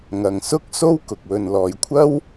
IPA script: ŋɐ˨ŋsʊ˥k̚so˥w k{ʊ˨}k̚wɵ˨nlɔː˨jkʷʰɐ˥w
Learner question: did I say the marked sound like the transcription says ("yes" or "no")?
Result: yes